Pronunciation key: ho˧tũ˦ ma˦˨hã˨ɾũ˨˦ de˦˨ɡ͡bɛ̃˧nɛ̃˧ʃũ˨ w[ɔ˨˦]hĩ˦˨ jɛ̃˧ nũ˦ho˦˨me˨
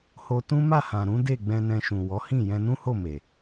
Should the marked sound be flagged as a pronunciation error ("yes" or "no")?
no